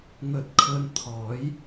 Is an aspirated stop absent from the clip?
no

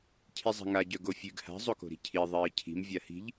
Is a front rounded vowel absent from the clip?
no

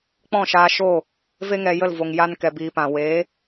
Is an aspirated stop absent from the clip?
yes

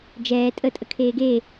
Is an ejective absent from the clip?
no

